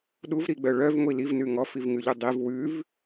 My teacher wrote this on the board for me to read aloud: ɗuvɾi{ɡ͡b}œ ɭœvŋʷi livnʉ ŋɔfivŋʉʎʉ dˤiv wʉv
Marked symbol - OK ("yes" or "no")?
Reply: yes